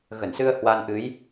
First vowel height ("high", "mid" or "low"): mid